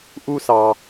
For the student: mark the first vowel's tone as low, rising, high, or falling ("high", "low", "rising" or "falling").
high